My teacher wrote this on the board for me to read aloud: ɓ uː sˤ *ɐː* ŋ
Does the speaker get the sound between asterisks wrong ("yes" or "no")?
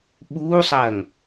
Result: no